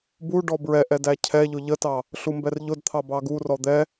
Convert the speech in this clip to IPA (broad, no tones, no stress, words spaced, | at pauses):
bu ɖɔbɹɛʔɛ dæcʰɛʎʊ ʎətɑ | ɬumbɛrʎʊdt̪ʰɑ bɑɡurɔ d̪ɛ